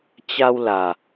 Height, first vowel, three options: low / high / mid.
low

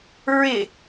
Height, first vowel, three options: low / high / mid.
high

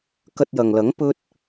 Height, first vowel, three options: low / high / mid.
low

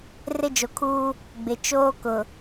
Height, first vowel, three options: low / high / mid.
high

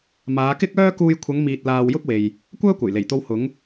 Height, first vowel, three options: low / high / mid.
low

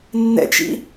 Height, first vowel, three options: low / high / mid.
mid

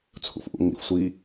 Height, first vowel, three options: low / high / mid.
high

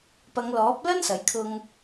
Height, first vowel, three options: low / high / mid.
low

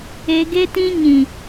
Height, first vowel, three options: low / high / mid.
mid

